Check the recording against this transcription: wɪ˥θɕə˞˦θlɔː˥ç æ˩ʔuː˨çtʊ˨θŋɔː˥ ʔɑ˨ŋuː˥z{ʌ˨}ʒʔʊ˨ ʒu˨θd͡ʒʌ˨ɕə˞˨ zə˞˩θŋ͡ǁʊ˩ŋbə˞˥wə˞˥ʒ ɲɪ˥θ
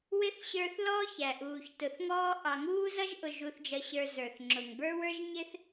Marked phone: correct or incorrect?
incorrect: ʌ˥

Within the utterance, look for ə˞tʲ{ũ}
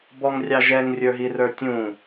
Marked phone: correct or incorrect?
correct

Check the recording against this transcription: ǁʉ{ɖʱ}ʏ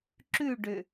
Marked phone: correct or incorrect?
incorrect: ɖ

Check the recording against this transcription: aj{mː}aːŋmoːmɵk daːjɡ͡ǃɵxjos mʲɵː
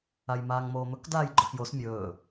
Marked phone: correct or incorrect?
incorrect: m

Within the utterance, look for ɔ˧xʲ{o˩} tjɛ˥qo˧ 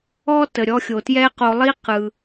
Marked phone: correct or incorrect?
correct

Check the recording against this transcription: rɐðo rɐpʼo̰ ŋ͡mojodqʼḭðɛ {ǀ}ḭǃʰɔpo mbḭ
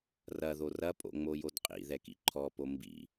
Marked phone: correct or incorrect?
incorrect: k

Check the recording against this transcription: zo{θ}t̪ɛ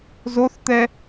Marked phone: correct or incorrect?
correct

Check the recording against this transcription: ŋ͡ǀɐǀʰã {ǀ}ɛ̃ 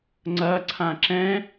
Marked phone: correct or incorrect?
incorrect: ǁ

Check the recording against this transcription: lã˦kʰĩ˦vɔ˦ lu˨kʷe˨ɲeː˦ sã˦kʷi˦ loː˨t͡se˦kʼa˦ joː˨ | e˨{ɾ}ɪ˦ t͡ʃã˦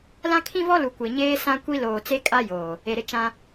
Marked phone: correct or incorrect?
correct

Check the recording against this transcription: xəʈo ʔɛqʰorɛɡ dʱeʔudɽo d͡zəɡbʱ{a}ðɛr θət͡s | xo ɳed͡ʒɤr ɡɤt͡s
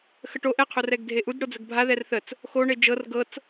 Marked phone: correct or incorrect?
correct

